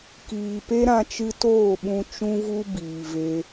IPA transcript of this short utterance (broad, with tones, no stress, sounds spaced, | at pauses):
k iː˨ p e˦ ɾ ã˧ t͡ʃ ɨ˧ t oː˦˨ ɓ ũ˧ t͡ʃ ũ˦ v u˦ b iː˨ v e˧